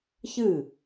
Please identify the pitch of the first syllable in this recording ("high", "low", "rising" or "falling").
falling